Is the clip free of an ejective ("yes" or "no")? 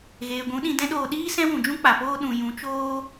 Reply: yes